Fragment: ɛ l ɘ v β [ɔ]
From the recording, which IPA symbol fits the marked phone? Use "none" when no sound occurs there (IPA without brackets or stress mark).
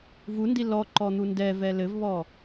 ɔ